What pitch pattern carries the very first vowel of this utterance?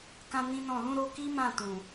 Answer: high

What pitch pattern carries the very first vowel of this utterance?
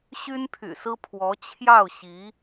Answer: high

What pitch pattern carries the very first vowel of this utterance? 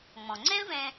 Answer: low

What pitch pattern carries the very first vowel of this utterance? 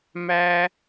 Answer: high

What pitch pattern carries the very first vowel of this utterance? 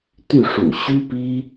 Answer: falling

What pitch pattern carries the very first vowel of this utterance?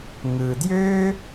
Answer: low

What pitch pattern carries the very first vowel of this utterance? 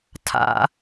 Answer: high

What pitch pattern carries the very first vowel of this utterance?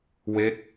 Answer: falling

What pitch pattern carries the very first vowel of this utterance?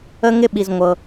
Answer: high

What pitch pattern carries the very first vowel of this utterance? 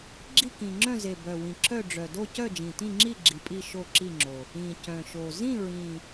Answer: falling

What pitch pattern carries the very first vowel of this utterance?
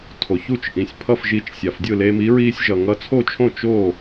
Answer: low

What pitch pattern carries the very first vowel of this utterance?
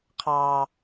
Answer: low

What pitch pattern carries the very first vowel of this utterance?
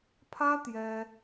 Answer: high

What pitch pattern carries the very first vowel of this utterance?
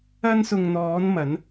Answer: high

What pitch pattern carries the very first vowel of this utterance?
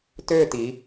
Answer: falling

